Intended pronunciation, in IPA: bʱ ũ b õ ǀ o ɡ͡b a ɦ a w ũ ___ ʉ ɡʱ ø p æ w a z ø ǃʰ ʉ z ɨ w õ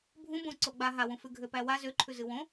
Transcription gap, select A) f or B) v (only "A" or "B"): A